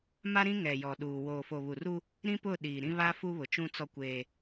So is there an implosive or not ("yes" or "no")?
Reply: yes